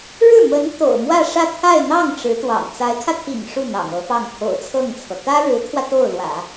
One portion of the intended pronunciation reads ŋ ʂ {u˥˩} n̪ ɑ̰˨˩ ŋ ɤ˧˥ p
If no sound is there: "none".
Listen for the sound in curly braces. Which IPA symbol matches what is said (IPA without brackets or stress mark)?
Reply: u˥˩